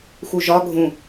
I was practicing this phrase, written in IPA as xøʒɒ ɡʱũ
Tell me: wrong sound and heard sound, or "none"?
ø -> u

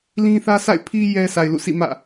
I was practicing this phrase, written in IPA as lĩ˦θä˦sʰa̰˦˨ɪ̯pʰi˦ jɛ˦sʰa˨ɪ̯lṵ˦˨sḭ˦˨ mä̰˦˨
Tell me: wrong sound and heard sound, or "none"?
none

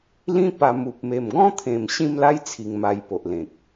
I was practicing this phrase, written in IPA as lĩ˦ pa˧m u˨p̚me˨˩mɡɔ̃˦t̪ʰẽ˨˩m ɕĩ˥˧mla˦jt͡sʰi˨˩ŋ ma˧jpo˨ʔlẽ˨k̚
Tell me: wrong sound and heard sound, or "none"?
none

